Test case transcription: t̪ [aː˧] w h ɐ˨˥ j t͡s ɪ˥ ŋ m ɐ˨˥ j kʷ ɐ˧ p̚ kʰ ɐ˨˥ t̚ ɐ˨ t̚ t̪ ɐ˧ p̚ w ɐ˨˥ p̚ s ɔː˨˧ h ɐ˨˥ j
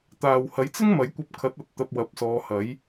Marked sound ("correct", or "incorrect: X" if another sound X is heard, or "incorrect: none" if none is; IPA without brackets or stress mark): incorrect: aː˨